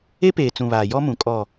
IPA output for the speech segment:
e˦ p eː˨ t͡s ũ˨ β aː˨ j ɔ˦ m ũ˨ kʼ ɔ˨

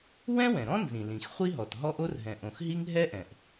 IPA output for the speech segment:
w ɛ̃˥ w ɛ̃˩ ɾ ɔ̃˥ n z ĩ˩ l ĩ˩ x χʷ i˥ ɦ ɔ˩ t ɦ ɔ˥ ʔ o˥ r ɦ ɛ̃˩ ʔ õ˩ x ɦ i˥ ŋ ɦ ɛ˥ ʔ ɛ̃˩ ʔ

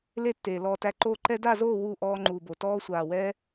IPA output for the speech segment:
l e˦ tː eː˨ l ɔː˧ t æ˧ ǃ oː˦ ǃ ɛ˧ d a˦˨ z oː˦˨ w u˦˨ ʔ ɔː˧ ŋ͡ǃ uː˨ b o˨ t ɔː˧ sʷ aː˨ w ɛ˧

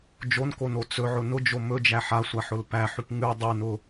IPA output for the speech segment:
d͡ʒ o n k o n o t͡s ɵ ʕ ʊ n ʊ d͡ʒ o m ɵ d͡ʒ æ ħ a sʷ a ħ ʊ l p æ ħ ʉ p ŋ ʉ dˤ ʉ n ʊ

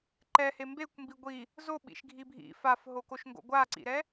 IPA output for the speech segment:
ǃ ɛ h e m b e kʷ m b i ɡʷ i | z o ɓ ḭ ʃ ɡʱ i bʱ ḭ f a f ɦ o k o ʃ ŋ ɡ o̰ ɡʷ a ǀ ḭ ɾ ɛ

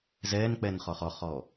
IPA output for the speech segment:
z ɛː n k͡p ɛ n χ ɔ χ ɔ χ ɔː

